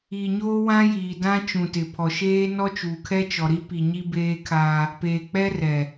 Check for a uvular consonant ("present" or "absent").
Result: absent